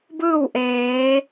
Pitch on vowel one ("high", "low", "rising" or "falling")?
falling